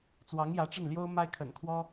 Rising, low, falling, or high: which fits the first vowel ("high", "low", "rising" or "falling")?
rising